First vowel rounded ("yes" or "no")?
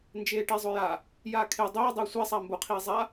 no